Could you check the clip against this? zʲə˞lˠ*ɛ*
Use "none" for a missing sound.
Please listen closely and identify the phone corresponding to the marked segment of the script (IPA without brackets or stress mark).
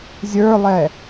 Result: ɛ